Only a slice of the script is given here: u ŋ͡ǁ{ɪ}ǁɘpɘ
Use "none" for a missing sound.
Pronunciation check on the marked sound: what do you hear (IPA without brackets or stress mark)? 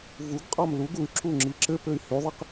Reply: i